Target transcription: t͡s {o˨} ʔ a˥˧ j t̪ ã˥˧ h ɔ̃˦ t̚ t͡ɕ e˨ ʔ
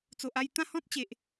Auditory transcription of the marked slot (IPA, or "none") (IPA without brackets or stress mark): o˨